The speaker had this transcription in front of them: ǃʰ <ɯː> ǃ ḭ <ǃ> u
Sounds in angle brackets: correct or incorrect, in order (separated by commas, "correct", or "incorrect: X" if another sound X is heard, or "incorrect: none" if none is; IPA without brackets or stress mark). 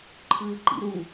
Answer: correct, incorrect: ɾ